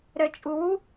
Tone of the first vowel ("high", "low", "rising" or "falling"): low